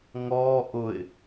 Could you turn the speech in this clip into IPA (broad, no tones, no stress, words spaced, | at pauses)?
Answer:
ŋɔː ʔʊɪ̯